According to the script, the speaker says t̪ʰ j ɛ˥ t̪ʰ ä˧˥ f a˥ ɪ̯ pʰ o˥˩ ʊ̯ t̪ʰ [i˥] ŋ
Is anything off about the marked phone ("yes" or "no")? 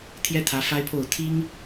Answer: no